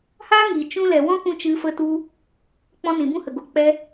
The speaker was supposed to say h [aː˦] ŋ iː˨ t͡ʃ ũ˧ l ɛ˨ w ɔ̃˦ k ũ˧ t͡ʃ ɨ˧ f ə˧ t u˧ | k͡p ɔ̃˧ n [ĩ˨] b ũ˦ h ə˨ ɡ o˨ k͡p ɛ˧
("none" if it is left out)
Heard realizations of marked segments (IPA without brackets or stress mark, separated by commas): aː˦, ĩ˨